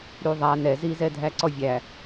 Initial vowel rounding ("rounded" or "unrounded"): rounded